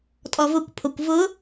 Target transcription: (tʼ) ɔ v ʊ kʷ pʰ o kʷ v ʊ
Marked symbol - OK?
yes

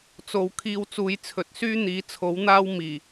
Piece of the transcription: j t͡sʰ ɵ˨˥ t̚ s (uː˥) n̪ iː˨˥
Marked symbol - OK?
no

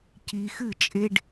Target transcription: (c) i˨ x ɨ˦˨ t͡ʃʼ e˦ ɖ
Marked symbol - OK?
yes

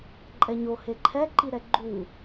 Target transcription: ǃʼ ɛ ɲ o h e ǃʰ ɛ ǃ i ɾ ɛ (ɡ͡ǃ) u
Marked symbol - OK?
yes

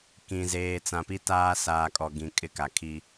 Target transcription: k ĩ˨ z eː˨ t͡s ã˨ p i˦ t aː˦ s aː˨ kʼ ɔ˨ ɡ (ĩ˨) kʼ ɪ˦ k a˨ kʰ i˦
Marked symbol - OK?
yes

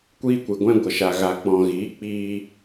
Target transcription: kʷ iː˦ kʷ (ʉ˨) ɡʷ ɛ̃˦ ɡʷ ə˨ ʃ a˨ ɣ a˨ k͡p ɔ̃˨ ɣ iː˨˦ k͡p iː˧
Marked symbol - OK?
no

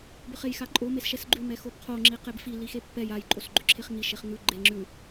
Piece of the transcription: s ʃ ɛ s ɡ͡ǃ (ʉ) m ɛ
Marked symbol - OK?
yes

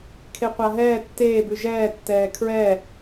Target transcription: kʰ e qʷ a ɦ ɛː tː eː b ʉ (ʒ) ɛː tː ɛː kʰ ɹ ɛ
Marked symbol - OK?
yes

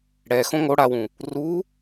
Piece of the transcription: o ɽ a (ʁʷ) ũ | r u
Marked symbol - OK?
no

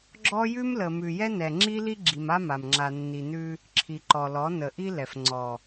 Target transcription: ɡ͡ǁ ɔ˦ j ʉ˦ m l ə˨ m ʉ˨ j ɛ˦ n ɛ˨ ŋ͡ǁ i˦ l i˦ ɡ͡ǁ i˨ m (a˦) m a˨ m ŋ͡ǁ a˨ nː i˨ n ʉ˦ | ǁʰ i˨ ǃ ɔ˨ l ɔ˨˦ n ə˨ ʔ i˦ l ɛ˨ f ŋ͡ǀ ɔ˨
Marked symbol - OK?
yes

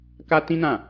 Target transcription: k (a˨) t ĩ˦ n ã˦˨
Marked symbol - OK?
no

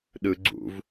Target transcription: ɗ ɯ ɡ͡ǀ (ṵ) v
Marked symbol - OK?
yes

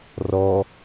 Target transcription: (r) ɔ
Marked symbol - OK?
yes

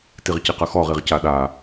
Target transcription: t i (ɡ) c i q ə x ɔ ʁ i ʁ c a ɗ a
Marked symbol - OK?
no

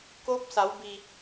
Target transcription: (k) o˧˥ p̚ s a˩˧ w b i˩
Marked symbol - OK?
yes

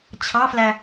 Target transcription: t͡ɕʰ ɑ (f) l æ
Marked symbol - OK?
yes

